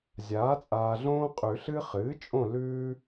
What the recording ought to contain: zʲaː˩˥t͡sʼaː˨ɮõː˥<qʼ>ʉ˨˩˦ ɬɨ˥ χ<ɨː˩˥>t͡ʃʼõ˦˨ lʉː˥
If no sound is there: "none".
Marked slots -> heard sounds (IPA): qʼ, ɨː˩˥

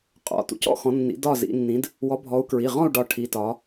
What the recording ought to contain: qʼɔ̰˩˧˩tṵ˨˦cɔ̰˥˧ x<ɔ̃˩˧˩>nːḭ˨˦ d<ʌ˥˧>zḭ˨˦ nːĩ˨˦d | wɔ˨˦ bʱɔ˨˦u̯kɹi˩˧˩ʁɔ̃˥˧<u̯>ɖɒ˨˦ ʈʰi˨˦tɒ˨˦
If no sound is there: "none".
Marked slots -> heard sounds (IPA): ɔ̃˨˦, ɒ˥˧, u̯

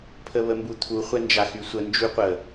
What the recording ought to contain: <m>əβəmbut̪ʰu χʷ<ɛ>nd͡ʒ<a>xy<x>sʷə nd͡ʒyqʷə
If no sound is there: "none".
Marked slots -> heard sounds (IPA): pʰ, ɛ, a, none

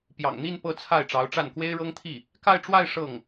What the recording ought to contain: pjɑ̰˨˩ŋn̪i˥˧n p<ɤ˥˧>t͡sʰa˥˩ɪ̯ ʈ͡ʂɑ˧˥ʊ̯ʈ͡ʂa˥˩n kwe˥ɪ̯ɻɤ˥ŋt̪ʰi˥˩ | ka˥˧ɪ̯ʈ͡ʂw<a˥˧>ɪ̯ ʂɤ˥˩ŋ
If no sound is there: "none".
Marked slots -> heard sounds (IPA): ɤ˥˧, a˥˧

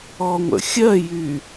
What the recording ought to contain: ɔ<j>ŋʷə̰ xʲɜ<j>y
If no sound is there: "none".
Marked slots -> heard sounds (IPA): none, j

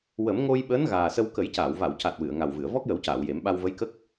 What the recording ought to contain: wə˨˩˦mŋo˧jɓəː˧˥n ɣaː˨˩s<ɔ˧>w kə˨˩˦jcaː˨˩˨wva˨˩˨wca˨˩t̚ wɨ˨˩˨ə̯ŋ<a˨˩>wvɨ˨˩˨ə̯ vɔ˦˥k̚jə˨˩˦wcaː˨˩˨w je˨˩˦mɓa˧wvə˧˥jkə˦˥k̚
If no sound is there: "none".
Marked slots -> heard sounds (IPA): ə˧, a˨˩

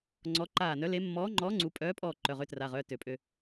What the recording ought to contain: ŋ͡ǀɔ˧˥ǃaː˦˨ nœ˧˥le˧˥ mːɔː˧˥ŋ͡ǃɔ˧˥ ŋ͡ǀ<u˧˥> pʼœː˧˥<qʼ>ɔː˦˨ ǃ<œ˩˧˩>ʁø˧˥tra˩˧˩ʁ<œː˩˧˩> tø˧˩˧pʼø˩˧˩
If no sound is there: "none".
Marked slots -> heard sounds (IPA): u˧˥, pʼ, œ˩˧˩, œː˩˧˩

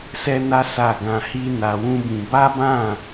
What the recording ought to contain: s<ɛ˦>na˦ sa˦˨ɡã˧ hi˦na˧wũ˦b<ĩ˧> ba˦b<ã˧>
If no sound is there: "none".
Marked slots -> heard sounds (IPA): ɛ˦, ĩ˧, ã˦˨

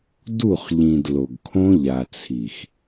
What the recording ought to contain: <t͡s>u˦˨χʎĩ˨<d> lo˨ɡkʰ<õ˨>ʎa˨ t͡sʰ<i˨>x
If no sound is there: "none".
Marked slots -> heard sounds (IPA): d, d, õ˦, i˨

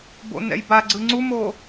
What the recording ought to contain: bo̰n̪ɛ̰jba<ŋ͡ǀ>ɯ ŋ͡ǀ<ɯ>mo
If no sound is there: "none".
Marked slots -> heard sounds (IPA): ɡ͡ǀ, u

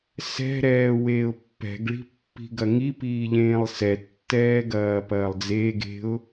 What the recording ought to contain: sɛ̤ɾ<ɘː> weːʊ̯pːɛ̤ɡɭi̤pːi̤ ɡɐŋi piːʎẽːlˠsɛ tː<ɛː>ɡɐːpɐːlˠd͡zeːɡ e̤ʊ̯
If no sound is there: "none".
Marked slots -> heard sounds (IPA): ɛː, ɛː

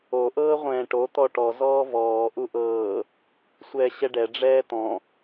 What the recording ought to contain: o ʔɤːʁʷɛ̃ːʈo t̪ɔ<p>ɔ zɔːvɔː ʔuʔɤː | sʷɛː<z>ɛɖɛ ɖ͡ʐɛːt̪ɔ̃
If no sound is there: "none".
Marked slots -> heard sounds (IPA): ʈ, ɕ

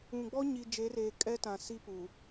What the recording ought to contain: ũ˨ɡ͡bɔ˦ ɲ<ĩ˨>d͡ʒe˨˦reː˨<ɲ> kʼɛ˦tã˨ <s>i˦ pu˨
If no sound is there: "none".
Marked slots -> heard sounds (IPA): i˨, none, s

